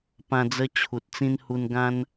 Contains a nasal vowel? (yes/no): yes